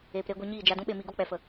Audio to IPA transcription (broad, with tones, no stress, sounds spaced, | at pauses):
eː˨ p ɾ eː˧ ɡʷ ɨ˧ ɲ iː˦˨ d͡ʒ a˧ d ũ˦ ɓ e˧ m i˧ ɡ o˦ k͡p ɛ˨ f ə˨